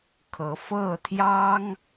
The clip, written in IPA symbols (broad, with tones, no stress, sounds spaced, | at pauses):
kʰ ɤ˧˥ f ɤ˥˩ t̪ʰ j ɑ˥ ŋ